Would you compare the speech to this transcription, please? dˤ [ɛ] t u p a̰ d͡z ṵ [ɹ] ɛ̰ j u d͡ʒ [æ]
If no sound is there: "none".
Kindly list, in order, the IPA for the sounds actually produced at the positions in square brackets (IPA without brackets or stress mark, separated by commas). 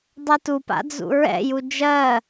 ɛ, ɹ, ɜ